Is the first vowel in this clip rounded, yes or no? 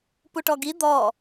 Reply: yes